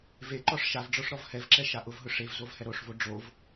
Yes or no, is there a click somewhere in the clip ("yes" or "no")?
yes